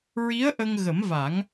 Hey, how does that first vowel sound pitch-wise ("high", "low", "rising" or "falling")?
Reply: rising